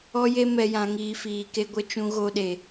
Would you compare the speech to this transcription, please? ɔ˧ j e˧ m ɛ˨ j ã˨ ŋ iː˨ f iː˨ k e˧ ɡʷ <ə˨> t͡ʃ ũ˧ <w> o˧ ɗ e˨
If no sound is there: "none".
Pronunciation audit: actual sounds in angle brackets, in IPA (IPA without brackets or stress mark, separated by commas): ə˧, ɣ